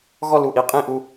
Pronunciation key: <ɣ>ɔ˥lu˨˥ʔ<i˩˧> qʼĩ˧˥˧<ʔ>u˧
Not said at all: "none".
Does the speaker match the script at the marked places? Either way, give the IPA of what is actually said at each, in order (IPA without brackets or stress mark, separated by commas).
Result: ɣ, i˩˧, ʔ